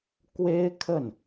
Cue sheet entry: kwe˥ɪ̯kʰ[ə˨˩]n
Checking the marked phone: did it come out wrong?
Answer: yes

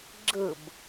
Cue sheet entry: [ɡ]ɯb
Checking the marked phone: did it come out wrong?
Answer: yes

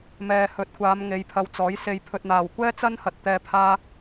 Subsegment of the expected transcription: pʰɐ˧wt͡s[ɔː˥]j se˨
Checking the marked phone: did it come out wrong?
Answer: yes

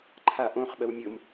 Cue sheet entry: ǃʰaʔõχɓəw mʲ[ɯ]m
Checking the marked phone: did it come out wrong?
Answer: yes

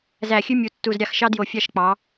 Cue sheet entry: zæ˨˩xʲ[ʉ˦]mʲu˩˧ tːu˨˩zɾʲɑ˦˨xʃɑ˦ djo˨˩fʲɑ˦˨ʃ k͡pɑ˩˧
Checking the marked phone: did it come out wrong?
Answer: no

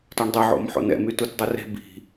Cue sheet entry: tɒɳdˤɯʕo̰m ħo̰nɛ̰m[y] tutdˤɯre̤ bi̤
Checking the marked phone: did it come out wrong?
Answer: no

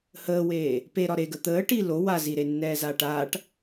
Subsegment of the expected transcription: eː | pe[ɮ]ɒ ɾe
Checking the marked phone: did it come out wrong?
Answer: yes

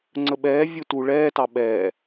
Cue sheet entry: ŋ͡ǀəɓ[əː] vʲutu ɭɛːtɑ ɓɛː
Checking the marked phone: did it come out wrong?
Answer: yes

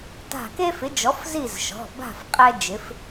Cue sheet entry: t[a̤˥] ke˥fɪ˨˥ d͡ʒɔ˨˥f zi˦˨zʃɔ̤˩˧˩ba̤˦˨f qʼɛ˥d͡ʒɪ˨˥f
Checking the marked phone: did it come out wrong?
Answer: yes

